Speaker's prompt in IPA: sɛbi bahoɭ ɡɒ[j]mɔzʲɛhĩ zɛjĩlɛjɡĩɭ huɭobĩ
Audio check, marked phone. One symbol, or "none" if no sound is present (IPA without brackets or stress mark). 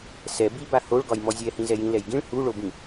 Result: j